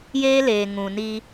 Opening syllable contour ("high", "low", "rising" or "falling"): high